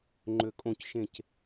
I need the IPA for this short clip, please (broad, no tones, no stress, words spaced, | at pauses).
ŋ͡ǃøkʼõcʃẽc